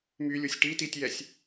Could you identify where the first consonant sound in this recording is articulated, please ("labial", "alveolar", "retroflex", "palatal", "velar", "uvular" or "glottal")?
labial